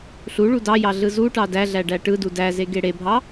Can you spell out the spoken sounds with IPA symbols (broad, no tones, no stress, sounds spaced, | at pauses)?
ɬ u ɭ u d ɑ j ɑ ɮ ɯ z u ʈ ɑ d æ ɮ æ ɖ æ ʈ ɯ d u d æ z e ɡ e ɽ e bʱ ɑ